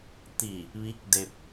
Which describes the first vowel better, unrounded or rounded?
unrounded